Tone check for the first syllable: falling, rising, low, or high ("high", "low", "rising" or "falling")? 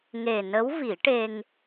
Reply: low